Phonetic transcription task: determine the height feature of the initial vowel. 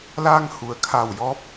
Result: low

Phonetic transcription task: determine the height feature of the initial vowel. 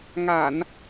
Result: low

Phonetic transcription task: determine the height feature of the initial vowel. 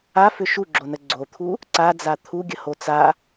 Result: low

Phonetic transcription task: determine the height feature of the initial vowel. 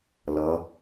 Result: mid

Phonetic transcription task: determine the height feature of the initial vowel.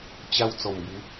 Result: low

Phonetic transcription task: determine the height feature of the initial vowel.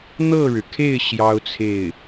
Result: mid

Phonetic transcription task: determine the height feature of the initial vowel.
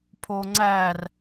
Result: mid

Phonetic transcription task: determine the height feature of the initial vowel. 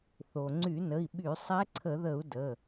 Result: mid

